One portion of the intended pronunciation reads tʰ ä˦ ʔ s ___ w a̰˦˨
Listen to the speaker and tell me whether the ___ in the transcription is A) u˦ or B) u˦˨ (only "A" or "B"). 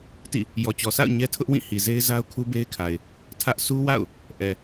A